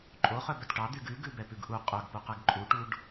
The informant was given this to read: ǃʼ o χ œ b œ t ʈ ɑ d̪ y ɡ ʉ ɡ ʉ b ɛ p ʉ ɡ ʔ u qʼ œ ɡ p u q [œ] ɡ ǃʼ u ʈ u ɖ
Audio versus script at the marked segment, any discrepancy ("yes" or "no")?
yes